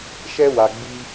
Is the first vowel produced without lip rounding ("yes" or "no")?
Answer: yes